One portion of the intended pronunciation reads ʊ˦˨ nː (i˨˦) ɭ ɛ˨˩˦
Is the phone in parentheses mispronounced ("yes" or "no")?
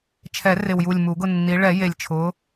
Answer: no